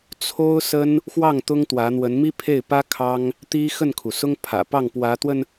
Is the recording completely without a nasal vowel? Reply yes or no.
yes